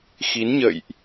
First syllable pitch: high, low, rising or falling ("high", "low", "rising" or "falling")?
rising